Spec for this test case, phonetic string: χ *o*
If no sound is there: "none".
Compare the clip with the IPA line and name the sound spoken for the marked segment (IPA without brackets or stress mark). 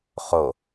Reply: o